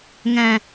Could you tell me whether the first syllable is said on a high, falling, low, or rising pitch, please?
low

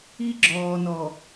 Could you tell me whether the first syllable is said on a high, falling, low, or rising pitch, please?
high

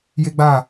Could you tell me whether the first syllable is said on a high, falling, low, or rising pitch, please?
high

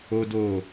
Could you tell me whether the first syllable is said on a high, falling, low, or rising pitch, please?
high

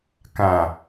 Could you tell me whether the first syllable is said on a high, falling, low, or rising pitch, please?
low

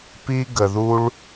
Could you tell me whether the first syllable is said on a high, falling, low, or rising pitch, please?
high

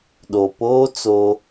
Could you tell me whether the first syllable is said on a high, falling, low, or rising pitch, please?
low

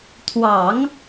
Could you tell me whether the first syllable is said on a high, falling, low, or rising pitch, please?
low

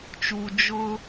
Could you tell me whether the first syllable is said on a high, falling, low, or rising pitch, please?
low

